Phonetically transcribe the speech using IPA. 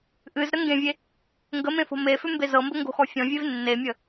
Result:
ʔ ɨ z ɾ ə ŋ ɡ ẽ vʲ e | ŋ ɡ ə m ẽ f o̤ m e f ʏ m b e z ɤ m b ə ŋ ɡ o̤ x ɔ fʲ ɔ̃ vʲ e v nː e mʲ ə

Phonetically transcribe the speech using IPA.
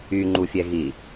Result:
y ŋ͡ǃ u fʲ ɛ ɣ i

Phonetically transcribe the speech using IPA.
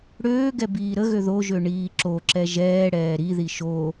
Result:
ɽ øː ɡ ɛ b iː ɾ ə ɣ ø ð o ʒ ø ɳ iː ǁ o ǁ ɛ ʒ ɛː ɽ ɛː ɾ i ð i ʃ o

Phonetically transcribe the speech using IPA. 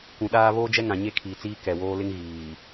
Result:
kʷ ũ˨ ɗ aː˦ β oː˦ d͡ʒ ɛ˦ ŋ ã˨ ɲ e˦ kʰ iː˨ t͡s iː˦ k ɛ˨ w oː˦ l ɪ˦ ŋ ɣ iː˨

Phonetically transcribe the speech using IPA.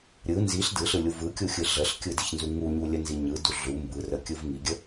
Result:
ɾʲ ɯ n z i ɬ d ɯ ɬ ɯ lʲ u v ɯ kʲ u xʲ ɯ ɮ ə ɬ kʲ ɯ d i ç n z u ŋ u ɲ u lʲ ə n z i ɲ ɯ d u ɮ u m b ɯ r ə kʲ ɯ v ŋ i ɡʲ ə

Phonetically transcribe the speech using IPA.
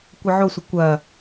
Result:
kʷ ə ʕ o sʷ ə kʷ ɐ

